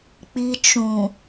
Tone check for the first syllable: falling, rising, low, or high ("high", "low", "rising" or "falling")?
low